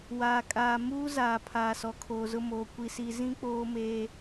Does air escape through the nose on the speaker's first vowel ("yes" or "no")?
no